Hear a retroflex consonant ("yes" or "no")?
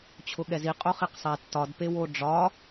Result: yes